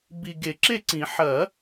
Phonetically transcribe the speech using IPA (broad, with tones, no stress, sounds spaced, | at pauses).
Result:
b i˨ ɡ e˨˩˦ ǁ e˥˨ ǀ ĩ˨˩˦ ħ ɐ˨˩˦